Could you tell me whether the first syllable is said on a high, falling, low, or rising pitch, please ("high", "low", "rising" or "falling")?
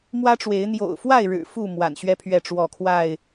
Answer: high